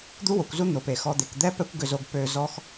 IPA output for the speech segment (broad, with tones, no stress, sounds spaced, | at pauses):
d̪ u˥ w o˩ kʷ z u˥ n̪ o˩ p e˩ x ɔ˧ d̪ e˩ k d̪ ɛ˥ p ɛ˥ kʷ ɡ ʏ˧ z o˧ ɡ p ø˧ z ɔ˥ x